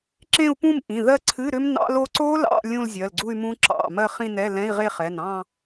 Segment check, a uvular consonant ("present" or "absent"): present